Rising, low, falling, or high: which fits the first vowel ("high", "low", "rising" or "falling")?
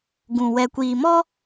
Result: low